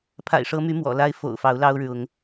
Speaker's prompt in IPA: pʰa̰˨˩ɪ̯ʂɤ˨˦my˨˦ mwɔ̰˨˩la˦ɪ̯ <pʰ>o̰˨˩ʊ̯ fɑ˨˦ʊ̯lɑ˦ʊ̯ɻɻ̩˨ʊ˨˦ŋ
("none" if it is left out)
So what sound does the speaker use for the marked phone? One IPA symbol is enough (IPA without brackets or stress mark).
f